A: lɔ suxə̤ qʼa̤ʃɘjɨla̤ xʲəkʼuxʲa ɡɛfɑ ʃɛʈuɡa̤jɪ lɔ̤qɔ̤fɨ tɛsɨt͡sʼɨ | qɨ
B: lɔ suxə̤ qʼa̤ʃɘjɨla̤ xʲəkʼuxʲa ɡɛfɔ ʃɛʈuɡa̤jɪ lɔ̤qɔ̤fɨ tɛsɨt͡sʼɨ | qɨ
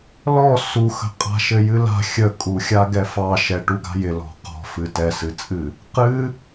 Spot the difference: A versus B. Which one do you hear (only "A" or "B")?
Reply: A